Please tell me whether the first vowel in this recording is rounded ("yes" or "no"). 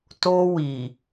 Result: yes